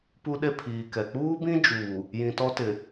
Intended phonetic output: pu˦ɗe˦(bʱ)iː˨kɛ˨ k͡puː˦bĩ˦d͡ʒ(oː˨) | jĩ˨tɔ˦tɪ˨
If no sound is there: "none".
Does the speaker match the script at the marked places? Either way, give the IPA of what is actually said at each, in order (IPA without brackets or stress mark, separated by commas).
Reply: pʰ, uː˨